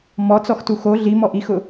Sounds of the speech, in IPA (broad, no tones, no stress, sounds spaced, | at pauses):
m ɔ t͡s ɔ x t u x o ɮ i m ɔ ʔ i x ʊ